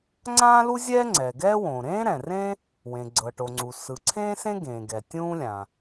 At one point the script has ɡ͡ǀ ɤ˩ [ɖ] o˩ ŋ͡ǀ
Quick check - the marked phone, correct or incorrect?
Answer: incorrect: ʈ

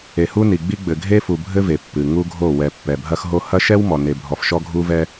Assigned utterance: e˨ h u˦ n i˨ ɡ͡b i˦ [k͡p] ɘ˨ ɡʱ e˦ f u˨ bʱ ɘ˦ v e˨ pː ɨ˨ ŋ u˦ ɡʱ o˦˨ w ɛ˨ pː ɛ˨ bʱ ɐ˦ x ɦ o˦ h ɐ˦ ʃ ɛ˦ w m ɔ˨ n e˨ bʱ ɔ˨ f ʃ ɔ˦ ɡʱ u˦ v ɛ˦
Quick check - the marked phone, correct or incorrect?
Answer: incorrect: ɡ͡b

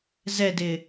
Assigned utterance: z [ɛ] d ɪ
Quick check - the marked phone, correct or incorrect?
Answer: correct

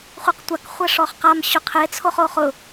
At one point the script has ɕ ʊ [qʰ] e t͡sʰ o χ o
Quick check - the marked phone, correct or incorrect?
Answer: correct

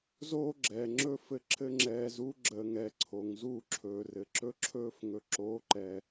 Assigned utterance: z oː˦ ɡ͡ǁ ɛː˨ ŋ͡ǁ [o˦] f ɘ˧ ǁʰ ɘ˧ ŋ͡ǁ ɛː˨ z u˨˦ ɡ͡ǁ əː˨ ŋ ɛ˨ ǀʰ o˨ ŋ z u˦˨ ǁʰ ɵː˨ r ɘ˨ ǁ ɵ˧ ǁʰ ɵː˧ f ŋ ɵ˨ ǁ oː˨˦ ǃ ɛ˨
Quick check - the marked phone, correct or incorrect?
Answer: incorrect: ɵ˦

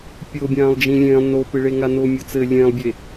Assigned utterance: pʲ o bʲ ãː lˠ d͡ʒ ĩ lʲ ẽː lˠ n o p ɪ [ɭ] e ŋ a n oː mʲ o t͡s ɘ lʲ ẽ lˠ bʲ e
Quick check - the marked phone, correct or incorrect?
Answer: correct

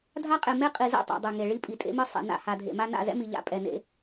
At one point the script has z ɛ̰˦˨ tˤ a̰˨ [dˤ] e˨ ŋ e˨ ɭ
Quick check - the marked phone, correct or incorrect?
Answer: correct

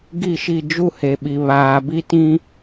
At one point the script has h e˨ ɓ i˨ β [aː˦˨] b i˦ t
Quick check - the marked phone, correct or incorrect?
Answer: incorrect: aː˨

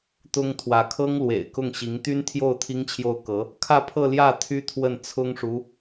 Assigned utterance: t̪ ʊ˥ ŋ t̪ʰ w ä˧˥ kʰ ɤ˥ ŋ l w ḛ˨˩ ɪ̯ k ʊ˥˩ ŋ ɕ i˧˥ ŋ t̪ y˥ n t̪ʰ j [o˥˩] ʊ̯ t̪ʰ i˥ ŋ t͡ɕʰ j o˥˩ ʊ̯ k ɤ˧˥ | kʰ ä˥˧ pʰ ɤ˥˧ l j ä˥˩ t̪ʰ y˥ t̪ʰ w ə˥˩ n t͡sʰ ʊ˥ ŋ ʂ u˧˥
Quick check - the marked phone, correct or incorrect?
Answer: correct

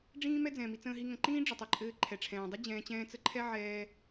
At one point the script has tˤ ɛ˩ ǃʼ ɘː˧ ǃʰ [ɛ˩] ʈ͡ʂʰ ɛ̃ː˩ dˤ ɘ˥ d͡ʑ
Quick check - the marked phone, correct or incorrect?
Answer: correct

